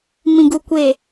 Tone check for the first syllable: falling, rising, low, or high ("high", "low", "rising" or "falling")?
low